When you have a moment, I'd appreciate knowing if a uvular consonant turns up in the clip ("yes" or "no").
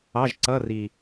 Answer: no